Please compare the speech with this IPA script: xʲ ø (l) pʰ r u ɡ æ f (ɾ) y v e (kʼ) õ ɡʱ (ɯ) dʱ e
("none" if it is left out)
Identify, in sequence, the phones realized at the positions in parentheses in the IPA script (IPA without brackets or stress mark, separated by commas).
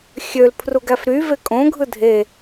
l, ɾ, kʼ, ɯ